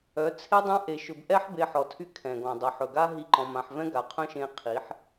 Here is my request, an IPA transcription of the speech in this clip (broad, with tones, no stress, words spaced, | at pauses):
œ˨˦t͡sʰe˦dˤã˦ ʔe˧ʃɵ˧b ʔɛ˦ħbe˧ ħɔ˨tʰy˦ kʰɛ̃˨ɡɔ̃˨ dˤɵ˨ħɵ˨ɡa˦ ɦi˦ǃɔ̃˧mã˧ħ vɛ̃˦ɡa˨qʰœ̃˦ʃẽ˧ qʰi˨˦ħ